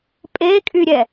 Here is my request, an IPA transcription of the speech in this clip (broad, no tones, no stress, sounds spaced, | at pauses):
pʼ e kʼ y ɾʲ ɛ